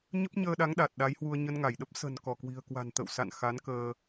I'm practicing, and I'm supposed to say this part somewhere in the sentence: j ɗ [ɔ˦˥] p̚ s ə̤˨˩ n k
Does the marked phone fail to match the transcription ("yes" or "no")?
yes